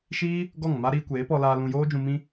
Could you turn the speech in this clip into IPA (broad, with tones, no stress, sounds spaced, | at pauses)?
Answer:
ʃ iː˦ | ɡ ɔ˦˨ ŋ m a˦ ɾ iː˧ kʷ eː˨˦ p ɔ˧ l aː˧ l ũ˧ j oː˦ d͡ʒ ũ˧ m ĩ˦